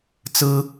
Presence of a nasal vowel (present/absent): absent